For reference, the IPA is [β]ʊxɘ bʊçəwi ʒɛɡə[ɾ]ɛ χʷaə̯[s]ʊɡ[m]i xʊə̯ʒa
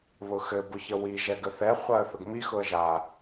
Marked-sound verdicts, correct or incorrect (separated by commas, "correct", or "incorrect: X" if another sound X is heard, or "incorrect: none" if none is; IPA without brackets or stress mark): correct, incorrect: θ, incorrect: θ, correct